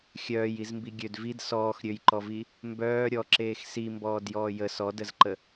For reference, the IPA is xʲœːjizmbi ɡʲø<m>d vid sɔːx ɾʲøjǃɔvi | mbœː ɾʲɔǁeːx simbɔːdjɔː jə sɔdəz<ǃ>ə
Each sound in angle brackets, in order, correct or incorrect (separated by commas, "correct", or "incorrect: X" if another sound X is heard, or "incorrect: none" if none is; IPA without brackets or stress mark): incorrect: none, correct